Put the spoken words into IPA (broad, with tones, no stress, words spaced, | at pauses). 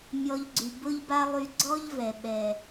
mʲɔ˧ʎɡ͡ǀy˨ bʊ˦ʎ ba˦lˠy˧ ɡ͡ǀɔ˦ʎvɛ˨ ɓɛ˨